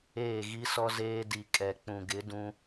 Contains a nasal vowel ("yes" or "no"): yes